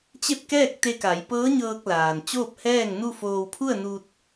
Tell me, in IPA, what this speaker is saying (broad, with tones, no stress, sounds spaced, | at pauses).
t͡ɕ e˥˨ p̚ k ɛː˥˨ k̚ t̪ e˧ k a˩˧ j p ɤː˧˥ ɲ ɤː˧ k̚ l aː˩ n t͡ɕ oː˥˨ p̚ h ɛː˥˨ ŋ n u˥˨ f oː˧ w pʰ u˥˨ ə̯ n u˧ t̚